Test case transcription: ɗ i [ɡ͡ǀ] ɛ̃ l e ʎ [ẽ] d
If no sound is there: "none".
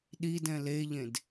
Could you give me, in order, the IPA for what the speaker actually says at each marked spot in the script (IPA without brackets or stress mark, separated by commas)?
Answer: d, ẽ